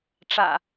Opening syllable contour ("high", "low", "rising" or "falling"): low